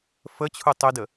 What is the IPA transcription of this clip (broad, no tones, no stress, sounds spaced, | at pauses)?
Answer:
f ə t͡ɕʰ u tˤ ʏ d ə